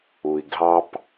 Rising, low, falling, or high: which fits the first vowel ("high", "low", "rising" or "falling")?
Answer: low